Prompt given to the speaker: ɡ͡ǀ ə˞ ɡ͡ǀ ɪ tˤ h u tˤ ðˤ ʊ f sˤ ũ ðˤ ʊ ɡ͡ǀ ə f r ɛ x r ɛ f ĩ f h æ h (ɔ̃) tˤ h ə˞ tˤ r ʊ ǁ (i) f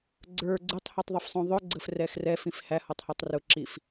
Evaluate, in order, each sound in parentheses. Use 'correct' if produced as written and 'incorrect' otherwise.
incorrect: ɔ, correct

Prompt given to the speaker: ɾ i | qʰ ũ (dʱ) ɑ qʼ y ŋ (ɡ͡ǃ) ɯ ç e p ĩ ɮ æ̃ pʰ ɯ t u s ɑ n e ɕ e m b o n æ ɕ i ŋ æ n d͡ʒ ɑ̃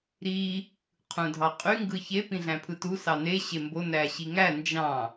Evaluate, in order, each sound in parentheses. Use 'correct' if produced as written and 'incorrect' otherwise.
correct, incorrect: ɡ

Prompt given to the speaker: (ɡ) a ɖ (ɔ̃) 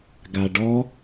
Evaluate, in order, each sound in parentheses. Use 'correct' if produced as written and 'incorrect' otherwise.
correct, incorrect: ɔ

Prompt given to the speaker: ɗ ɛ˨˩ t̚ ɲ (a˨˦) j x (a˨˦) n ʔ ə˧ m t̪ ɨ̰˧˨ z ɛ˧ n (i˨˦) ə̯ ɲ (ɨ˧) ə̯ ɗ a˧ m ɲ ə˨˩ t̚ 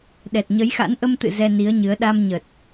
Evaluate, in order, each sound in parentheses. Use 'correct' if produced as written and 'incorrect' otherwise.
incorrect: ə˨˦, incorrect: a̰˧˥, correct, incorrect: ɨ˨˦

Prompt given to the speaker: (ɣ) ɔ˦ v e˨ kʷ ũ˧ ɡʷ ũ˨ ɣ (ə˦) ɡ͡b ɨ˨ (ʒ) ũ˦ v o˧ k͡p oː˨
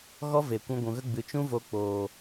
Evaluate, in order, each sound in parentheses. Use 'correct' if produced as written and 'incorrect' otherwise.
correct, correct, incorrect: t͡ʃ

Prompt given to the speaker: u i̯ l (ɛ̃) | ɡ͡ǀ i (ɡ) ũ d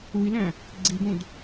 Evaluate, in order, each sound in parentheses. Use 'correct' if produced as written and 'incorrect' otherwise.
incorrect: æ̃, correct

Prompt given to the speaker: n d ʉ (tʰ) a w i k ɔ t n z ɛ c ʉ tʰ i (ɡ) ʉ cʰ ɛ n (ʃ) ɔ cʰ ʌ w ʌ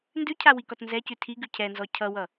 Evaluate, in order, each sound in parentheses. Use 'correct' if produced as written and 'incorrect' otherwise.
incorrect: cʰ, correct, incorrect: z

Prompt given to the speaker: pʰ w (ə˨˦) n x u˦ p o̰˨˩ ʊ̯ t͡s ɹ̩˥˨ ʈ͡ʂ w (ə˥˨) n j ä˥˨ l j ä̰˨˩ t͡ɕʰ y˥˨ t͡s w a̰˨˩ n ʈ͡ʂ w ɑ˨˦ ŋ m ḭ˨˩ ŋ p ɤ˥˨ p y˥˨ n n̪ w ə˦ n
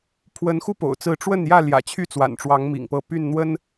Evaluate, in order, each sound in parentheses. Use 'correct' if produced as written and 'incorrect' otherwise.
correct, correct

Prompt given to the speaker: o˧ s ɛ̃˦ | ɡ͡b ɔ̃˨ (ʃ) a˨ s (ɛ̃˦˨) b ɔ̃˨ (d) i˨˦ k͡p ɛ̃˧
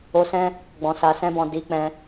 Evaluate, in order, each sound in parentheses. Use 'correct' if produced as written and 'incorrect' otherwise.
incorrect: s, incorrect: ɛ̃˧, correct

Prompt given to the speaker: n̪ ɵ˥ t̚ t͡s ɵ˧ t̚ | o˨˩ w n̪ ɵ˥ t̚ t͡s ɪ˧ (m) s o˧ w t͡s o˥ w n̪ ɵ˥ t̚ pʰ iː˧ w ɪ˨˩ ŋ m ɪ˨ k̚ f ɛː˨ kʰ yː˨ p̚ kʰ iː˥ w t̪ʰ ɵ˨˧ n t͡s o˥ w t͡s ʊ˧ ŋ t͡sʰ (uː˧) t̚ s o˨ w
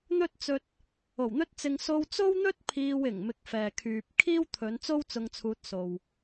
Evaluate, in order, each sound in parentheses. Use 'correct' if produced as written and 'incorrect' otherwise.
incorrect: ŋ, correct

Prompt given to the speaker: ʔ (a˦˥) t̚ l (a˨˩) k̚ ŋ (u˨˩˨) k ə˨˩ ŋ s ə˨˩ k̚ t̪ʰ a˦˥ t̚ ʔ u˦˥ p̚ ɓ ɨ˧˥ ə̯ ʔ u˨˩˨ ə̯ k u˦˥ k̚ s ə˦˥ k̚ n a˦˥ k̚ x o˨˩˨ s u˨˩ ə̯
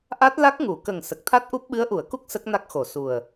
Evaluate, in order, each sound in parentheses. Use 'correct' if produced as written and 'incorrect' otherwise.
correct, incorrect: a˦˥, correct

